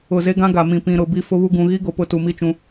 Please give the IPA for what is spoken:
ʊ˨ze˦ɡã˦ ɡa˨mĩ˨pĩ˨ ɾʊ˨ bi˦fʊ˦βu˦ ɡũ˨ɣi˦ɡo˨ pʊ˦tu˨mi˦t͡ʃũ˦

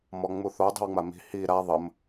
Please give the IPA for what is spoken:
mɔŋ͡muθo dˤi̤wŋ͡mami̤ hi ɾa ðˤəm

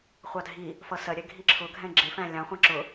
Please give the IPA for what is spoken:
χʷɑdʱi | fʌsɜɾʲɛ ɡʱiǁʰʊɡʱɛ̃ ɡ͡ǁɪfæ̃ lʲɑ̃χʷɑ̃ ǁʊ

